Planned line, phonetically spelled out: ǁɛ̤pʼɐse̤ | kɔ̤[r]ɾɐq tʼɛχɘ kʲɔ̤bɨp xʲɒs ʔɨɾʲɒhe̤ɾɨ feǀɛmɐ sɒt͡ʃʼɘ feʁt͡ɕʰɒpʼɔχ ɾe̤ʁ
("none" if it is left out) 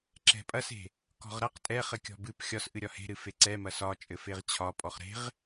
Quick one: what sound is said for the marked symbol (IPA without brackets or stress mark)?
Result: ʁ